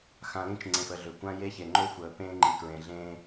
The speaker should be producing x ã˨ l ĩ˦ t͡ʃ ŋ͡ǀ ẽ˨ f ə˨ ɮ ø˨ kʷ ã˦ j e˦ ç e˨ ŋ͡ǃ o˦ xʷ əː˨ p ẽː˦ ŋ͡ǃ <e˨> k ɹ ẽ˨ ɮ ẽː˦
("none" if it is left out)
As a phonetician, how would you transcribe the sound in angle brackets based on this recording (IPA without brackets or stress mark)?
i˨